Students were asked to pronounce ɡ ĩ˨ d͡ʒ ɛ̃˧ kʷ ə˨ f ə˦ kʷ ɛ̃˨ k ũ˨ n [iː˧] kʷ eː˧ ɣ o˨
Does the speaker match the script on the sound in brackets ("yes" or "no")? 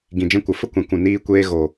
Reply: yes